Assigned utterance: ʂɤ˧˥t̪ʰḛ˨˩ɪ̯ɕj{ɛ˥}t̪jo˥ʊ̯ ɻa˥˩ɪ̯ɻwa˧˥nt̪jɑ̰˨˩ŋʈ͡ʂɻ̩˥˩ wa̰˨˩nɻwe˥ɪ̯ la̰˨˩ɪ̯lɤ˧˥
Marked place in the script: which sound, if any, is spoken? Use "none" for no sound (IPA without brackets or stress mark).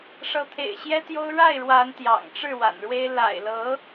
ɛ˥